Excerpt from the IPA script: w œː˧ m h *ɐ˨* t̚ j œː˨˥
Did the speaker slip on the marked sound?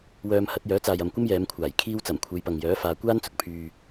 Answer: yes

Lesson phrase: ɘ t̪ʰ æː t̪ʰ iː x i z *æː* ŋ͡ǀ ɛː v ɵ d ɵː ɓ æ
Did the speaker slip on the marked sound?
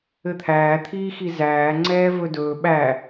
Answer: no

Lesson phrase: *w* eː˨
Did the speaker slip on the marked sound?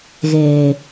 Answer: yes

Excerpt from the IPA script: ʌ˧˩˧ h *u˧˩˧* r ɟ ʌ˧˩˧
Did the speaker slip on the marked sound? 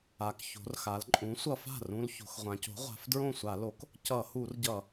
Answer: no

